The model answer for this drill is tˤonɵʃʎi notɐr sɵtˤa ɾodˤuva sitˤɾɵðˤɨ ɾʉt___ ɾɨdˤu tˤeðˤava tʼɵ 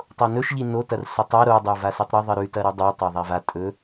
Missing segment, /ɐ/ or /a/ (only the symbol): ɐ